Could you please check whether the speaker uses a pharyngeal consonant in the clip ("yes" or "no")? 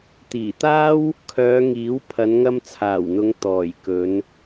no